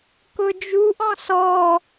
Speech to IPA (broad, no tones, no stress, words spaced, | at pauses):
kʊd͡ʒuʔɔ̃ sɔ